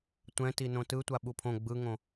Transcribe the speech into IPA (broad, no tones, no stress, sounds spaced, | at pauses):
tʷ ɛ̃ t i n õ t ɯ tʷ a ɓ u pʰ õ ɡ͡b ɯ ŋ õ